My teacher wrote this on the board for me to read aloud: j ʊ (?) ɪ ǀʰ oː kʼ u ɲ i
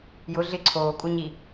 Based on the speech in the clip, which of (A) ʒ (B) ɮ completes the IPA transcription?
B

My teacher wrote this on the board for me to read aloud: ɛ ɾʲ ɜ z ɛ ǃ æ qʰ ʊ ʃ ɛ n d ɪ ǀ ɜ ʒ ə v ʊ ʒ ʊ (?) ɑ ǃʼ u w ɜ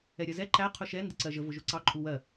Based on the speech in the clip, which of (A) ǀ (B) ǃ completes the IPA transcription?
A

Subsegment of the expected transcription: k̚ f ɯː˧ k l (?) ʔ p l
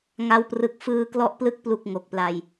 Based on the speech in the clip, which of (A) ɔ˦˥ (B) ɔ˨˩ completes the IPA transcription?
A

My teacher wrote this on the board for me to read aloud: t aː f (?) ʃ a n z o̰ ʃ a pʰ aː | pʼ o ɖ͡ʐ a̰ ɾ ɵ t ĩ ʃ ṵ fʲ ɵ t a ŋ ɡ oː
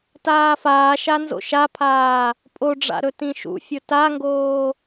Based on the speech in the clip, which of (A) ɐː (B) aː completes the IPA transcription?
B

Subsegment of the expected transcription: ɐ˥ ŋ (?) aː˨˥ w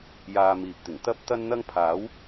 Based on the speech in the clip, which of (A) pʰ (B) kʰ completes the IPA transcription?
A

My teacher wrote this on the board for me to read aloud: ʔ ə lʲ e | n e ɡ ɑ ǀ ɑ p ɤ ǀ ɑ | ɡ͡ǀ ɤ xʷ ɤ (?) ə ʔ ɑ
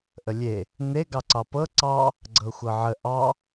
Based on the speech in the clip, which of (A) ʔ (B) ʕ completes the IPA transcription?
B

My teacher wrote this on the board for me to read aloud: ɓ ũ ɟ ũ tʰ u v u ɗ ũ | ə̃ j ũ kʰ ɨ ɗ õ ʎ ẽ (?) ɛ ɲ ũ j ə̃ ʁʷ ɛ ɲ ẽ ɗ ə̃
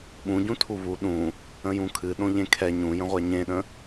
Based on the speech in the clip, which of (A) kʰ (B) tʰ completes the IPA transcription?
A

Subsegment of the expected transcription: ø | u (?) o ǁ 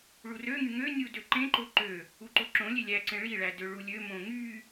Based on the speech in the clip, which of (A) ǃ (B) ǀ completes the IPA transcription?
A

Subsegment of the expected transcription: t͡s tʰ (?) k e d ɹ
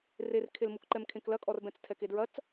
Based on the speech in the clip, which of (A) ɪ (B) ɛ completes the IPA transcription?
B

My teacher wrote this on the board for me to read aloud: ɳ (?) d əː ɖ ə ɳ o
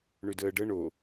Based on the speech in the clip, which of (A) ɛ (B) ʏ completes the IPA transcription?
B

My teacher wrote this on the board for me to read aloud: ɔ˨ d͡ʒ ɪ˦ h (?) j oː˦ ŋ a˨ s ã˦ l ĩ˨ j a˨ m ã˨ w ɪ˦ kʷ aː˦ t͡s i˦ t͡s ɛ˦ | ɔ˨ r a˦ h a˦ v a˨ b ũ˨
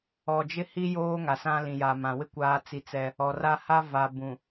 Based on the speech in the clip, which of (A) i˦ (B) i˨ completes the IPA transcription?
A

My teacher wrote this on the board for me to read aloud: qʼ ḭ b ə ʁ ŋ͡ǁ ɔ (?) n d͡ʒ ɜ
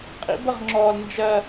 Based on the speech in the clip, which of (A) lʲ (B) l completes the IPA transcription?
B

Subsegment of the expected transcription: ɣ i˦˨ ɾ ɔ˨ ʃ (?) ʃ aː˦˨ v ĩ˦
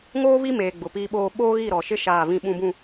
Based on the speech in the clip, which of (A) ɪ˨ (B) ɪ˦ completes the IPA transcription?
B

